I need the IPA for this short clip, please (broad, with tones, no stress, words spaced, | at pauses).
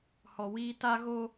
hɔ˨wiː˦ ta˦ɣo˦